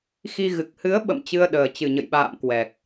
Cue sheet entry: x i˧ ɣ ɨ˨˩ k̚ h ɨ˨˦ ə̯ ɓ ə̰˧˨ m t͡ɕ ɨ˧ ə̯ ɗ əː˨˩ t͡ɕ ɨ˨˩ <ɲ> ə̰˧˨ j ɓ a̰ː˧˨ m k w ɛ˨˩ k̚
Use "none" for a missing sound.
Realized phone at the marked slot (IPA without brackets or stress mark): ɲ